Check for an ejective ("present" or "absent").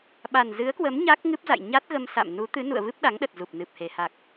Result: absent